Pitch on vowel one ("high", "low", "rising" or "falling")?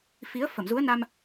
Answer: rising